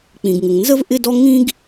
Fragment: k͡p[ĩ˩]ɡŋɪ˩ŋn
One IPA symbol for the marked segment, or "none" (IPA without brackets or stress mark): ĩ˩